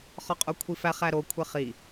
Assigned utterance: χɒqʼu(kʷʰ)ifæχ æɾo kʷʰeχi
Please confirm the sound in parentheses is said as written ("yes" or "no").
yes